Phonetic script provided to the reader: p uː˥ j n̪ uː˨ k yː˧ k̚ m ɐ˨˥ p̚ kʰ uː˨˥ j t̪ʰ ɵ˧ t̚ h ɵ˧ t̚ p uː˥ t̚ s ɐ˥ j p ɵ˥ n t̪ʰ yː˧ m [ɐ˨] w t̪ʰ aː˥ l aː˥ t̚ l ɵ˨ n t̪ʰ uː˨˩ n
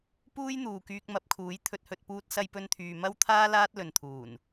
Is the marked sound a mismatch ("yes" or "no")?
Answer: yes